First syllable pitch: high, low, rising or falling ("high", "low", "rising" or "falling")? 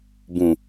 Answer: low